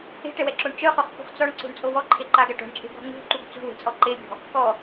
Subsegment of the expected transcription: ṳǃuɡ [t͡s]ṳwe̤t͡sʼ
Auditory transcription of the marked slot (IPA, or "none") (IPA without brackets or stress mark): t͡s